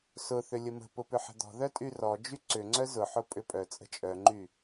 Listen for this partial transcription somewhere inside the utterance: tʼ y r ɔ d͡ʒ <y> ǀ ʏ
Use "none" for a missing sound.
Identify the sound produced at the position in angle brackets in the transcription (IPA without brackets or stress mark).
y